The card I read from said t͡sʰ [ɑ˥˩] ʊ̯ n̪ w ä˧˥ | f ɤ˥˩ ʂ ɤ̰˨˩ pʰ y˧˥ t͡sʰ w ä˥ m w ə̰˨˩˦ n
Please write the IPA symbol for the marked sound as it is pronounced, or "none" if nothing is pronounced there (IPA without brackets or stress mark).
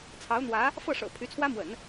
ɑ˧˥